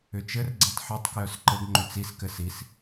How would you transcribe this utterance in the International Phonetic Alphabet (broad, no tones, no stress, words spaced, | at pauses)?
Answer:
ʏt͡ʃɘr ɡ͡ǀɛtˤħitˤ kjœsǃɘɡ ŋ͡ǃʏt͡sis kɘsis